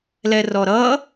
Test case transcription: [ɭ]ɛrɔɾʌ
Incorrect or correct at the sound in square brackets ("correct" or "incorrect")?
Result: incorrect